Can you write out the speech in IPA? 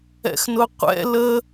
ɛ̰ x n ʊ qʷ ɛ̰ l ə

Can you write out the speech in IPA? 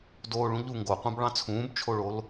d oː ɭ ũ ʎ u ŋ ɡ o qʷ ɑ̃ b ɭ ɑ̃ t͡sʰ ũː b t͡ʃʰ o ɭ o l

